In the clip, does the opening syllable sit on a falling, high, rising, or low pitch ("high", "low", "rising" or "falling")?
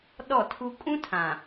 falling